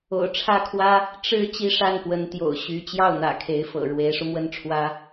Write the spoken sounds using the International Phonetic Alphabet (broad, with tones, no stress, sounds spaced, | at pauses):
o̰˨˩ ʊ̯ ʈ͡ʂʰ ä˥ kʰ w ä˥ | ʈ͡ʂ ɻ̩˥ t͡ɕ i˥ ʂ a˥˩ n p w ə˧˥ n t̪ j o̰˨˩ ʊ̯ ɕ y˧˥ t͡ɕ j ɑ˥˩ ʊ̯ n̪ ä̰˨˩ kʰ e˧˥ ɪ̯ f ɤ̰˨˩ ɻ w e˧˥ ɪ̯ ʂ u˧ m w ə˥˩ n ʈ͡ʂʰ w ä˥